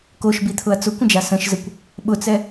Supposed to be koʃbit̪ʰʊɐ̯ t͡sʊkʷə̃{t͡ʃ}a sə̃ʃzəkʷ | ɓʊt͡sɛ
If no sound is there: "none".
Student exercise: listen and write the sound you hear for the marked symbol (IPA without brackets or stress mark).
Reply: d͡ʒ